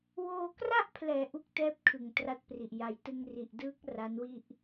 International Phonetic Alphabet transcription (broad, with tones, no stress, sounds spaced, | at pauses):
w oː˧ k r a˥˩ ʔ pʰ l ɛː˩˦ ʔ u˦˥ k̚ t ɛː˦˥ p̚ kʰ ɯ˨˩ ŋ t r a˦˥ t̚ p r i˨˩ ʔ j a˩˦ j t ɯ˧ ŋ r i˨˩ ʔ d ɯː˦˥ k̚ r a˦˥ n w i˥˩ ʔ